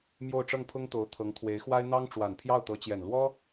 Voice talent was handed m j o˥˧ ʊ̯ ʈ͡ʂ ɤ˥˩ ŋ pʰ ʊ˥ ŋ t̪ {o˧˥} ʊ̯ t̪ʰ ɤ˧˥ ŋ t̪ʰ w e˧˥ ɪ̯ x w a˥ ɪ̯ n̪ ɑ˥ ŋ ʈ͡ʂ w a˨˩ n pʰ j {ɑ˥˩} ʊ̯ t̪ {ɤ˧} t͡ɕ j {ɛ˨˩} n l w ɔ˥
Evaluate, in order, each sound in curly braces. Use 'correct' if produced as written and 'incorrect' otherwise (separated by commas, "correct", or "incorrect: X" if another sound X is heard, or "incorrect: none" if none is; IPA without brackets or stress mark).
correct, correct, incorrect: ɤ˧˥, correct